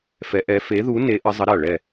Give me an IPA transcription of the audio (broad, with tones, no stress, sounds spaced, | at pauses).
f ɛ˧˥ ʔ ɛ˧˥ f e˧˥ ð u˧˥ n e˧˥ ʔ ə˧˥ zˤ ə˧˥ ɾ a˦˨ ɭ ɛ˦˨